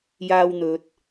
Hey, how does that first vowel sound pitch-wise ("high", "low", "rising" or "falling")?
low